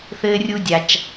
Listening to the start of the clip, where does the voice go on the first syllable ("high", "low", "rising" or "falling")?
high